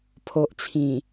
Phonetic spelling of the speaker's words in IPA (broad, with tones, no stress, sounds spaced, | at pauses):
pʰ o˨ ʔ t͡sʰ ĩ˨˩